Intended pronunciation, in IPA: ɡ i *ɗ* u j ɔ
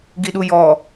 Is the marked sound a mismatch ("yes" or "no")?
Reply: no